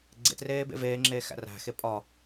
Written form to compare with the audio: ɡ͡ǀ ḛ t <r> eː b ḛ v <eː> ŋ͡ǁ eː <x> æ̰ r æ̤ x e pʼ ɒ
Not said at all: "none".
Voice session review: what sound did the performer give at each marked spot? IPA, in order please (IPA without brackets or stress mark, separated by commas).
r, eː, x